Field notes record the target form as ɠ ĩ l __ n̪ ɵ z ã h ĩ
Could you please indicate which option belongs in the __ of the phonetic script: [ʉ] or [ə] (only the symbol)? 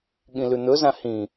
ʉ